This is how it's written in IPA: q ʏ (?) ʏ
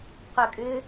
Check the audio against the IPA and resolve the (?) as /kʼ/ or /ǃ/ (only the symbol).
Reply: kʼ